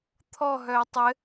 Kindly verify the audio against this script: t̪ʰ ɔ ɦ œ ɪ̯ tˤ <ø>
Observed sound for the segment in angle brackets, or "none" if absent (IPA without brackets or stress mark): ɘ